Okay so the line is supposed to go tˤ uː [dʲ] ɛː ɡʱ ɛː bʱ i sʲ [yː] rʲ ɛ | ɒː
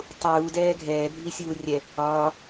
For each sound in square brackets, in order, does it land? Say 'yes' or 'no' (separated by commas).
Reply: no, no